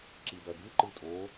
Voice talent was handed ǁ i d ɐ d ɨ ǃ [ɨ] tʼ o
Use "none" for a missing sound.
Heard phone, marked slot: ɨ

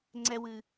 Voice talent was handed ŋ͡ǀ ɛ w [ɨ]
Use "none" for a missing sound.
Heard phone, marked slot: ɨ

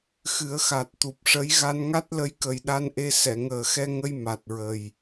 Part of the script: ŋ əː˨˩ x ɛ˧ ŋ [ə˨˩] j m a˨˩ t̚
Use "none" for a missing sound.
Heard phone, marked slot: ə˧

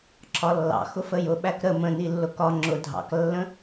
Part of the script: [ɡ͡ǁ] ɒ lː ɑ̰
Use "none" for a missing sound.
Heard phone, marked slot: ǁʰ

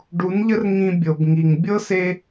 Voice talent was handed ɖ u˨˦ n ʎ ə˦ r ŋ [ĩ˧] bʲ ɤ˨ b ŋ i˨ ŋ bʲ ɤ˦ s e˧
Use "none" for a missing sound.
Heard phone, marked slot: ĩ˧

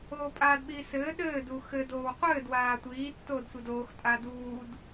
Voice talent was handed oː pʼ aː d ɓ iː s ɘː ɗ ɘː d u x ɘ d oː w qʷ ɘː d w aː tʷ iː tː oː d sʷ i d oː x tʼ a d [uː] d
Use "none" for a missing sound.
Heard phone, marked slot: uː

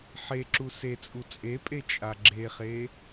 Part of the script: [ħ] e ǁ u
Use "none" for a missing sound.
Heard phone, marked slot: ħ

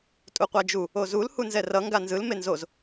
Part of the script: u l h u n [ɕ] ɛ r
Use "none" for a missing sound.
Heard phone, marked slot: z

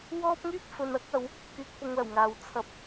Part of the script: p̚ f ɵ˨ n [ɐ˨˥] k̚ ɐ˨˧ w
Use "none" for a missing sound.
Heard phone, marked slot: ɐ˨˥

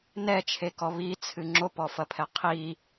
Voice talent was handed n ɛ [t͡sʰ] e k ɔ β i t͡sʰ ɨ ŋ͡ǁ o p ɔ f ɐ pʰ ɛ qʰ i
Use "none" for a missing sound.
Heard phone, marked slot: t͡ʃʰ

